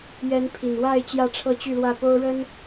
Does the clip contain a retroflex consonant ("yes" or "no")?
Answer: yes